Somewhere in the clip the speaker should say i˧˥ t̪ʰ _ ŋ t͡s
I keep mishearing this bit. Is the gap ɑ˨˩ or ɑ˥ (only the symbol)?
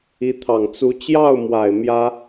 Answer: ɑ˨˩